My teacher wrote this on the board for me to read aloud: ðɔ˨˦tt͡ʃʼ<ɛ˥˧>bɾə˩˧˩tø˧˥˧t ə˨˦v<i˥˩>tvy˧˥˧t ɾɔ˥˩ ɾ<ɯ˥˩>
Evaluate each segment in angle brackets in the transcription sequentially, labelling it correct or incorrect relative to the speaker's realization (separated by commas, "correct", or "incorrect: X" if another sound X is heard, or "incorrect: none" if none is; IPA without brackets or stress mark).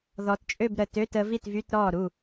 incorrect: ø˥˧, correct, incorrect: u˥˩